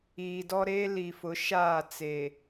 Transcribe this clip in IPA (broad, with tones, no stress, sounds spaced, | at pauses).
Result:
iː˨ d ɔ˦ ɾ e˦ l i˨ f ʊ˨˦ ʃ aː˦˨ t͡s e˨